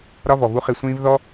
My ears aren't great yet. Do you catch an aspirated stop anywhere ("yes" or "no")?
no